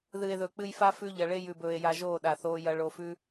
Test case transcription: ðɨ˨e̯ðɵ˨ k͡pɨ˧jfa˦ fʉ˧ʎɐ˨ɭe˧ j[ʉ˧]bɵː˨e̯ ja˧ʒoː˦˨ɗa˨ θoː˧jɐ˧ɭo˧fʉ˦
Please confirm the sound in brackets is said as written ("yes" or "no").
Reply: no